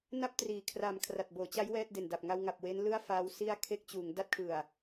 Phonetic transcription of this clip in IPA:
na˥˩p̚triː˩˦kʰra˨˩m kʰra˨˩t̚boː˩˦t͡ɕa˦˥j wɛː˥˩t̚de˨˩nda˨˩p̚ ŋa˧wŋa˨˩p̚ we˦˥nlɯ˥˩a̯ faː˦˥w si˦˥a̯ kʰe˦˥k̚t͡ɕuː˩˦ŋ da˦˥t̚kʰɯ˨˩a̯

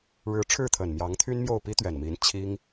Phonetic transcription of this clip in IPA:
ɻɻ̩˧˥ʈ͡ʂʰɻ̩˥˩t̪ʰə˨˩n mjɑ˧˥ŋ t̪ʰy˥nmjo˥˩ʊ̯ pi˥t̪ɥɛ˨˩nmi˧˥n t͡ɕʰi˥ŋ

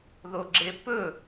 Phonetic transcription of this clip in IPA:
ðoɡ͡ǁepɵ

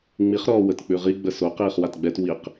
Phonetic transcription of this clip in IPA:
ŋ͡miχɾɔː wətk͡pʉʁi ɡ͡bəso qiːχwatɡ͡bɛt wiq

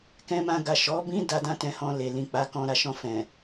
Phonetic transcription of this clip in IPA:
kɛ̃˧mã˧ɡa˨ ʃɔ˨˦ bĩ˧ da˧dã˧tɛ̃˨hɔ̃˨ le˨lĩ˨ k͡pa˨˦kɔ̃˧ ɾa˨ʃɔ̃˧fɛ̃˨

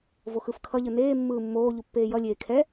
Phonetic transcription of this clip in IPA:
voxɯfkʰʌʎɯ neː mːɯːmːoːʎu pːeːjʌlʲeː kʰɛ

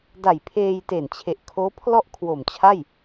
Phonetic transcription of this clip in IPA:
da˨˩jpʰeː˧j te˨˩nt͡ɕʰe˨˩ʔ kʰoː˦˥pʰlɔ˥˩ʔ kʰwo˨˩mt͡ɕʰa˥˩j

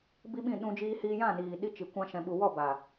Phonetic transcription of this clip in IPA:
bi˦ɓĩ˦˨ɗũ˧ d͡ʒiː˧hiː˧jã˦˨ niː˨ɗi˦t͡ʃi˨ kʷã˦ʃɛ̃˧ɓu˧ wɔ˦˨baː˨

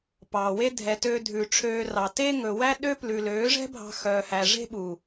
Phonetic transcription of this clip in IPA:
pɑː˨we˦ dʱɛ˨tøː˧ dʱʉ˨ʈ͡ʂʰøː˧rɑ˨ te˦ ŋɵ˨wæ˦ ɗø˦plʉ˨ løː˨˦ʐɛ̤˦bʱɑ̤˧ xœː˧hæ˧ ʐe̤˦ɓu˨

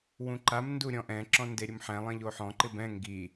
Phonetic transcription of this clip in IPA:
wũǃam nduɾʲɔ̃ʔɛ̃ ǁɔ̃ndeɾʲʊmħɛ̃ lˠẽʎoħɔ̃ ǃɪbɛ̃ ŋɡi

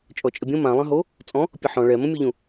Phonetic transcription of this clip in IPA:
t͡ʃʼɔt͡ʃʼəbʲõ mãlˠə̃ɦo | t͡sʼɔ̃ | pʲəħɔ̃ ɭɛ mə̃mʲuʎũ

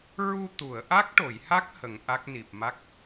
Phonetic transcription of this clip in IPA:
ɹu˧ t̪u˨˩˨ə̯ʔa˦˥k̚ʈo˨˩˨jha˦˥k̚ hə˨˩˦ŋʔa˦˥k̚ni˨˩p̚ma˦˥k̚

